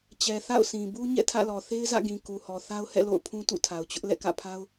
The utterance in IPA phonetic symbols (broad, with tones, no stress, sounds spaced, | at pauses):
t͡ɕ ɛ˨ θ a̰˦˨ ʊ̯ s ĩ˨ b u˦ ɲ ɛ̰˦˨ tʰ ä̰˦˨ l ɔ˨ θ e˦ ɪ̯ z ä̰˦˨ ɡ ĩ˨ k u˨ h ɔ˨ θ a˦ ʊ̯ h ɛ̰˦˨ l o̰˦˨ ʊ̯ pʰ ũ˦ t ṵ˦˨ tʰ a˨ ʊ̯ t͡ɕ ʊ˦ ʔ l ɛ̰˦˨ k ä̰˦˨ pʰ a˦ ʊ̯